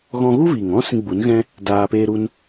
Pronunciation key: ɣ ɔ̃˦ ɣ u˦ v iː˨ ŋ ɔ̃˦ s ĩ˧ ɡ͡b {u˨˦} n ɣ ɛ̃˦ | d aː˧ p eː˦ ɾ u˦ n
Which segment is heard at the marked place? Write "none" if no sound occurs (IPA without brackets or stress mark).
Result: u˨˦